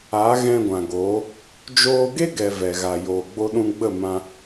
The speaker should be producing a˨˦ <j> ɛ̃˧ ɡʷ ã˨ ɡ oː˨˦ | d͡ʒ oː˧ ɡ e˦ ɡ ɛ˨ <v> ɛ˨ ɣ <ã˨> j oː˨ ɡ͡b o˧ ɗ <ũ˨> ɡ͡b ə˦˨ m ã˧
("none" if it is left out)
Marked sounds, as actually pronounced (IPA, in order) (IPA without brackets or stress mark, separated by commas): ɣ, v, a˨, ũ˧